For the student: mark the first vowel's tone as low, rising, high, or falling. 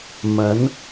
rising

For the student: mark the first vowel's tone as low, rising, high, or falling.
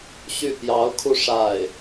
falling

